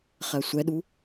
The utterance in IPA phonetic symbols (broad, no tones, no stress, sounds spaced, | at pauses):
χ ɜ sʷ ɛ ɗ u